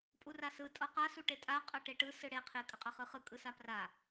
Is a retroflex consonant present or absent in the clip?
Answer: present